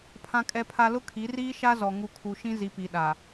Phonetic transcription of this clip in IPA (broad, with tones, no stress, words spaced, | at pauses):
pʰã˨kʼɛ˨pʰa˨ lʊ˦kʰi˨˦ riː˦ʃa˦zɔ˨ ŋu˨kʰu˨ ʃĩ˦zi˨pi˨ ɗa˨